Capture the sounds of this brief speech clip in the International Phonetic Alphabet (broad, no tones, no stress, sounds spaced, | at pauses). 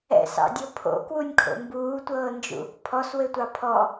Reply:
ɛ̰ s ɑ̰ dʲ o pʰ o̰ k w u nʲ kʰ o̰ m b uː tʷ ɤː n d͡ʒ ṵ | pʰ ɔ s w ɘ tʷ ɑ pʰ ɔ